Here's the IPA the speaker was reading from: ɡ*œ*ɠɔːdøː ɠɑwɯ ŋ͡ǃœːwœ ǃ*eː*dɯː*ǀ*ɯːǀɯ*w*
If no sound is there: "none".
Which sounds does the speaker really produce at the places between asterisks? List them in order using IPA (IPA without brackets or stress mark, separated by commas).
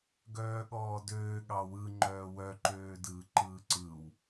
œː, øː, ǃ, w